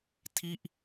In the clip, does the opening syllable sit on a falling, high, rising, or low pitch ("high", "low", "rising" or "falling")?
falling